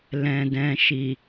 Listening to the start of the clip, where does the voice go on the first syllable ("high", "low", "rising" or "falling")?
low